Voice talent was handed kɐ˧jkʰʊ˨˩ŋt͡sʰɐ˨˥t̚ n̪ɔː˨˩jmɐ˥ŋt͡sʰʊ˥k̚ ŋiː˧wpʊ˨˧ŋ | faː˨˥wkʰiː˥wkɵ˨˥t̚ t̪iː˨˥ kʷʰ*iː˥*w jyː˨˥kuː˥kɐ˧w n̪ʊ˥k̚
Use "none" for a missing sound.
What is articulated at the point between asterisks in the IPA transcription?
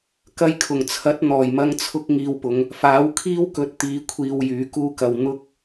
iː˨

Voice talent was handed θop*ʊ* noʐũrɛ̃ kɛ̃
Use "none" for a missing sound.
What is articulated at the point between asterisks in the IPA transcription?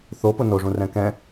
ʊ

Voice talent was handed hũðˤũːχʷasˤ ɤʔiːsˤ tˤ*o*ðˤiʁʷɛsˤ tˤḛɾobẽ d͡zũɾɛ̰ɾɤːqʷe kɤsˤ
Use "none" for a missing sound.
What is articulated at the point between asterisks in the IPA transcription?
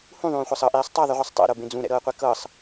ɤ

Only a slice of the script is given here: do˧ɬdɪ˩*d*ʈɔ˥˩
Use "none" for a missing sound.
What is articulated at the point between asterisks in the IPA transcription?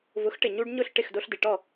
none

